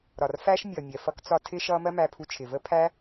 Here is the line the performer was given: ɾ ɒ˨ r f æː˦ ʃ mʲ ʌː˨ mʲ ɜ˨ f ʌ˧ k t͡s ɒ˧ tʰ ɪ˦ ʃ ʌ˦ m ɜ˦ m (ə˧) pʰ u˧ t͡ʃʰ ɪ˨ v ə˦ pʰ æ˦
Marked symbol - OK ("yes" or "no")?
no